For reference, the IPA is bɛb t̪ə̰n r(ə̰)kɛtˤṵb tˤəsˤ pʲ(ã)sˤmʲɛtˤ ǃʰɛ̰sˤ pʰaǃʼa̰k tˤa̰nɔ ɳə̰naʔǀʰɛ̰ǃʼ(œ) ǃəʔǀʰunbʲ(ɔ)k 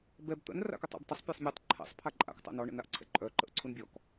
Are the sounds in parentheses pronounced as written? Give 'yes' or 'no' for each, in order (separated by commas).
no, no, yes, yes